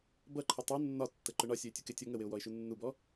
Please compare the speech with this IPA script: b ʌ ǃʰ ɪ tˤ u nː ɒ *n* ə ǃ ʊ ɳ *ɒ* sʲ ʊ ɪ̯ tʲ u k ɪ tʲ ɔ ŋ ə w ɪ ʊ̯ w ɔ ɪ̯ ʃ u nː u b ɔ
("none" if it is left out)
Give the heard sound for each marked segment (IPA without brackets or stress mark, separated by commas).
tː, ɒ